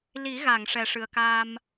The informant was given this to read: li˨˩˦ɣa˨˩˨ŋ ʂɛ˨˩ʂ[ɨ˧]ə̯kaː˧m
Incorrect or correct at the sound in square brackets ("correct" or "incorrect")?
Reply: incorrect